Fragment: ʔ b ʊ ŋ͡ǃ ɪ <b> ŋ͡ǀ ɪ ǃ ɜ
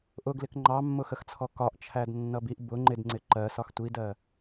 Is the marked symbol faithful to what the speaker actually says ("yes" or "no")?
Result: no